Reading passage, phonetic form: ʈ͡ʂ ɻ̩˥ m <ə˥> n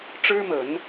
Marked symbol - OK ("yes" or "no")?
no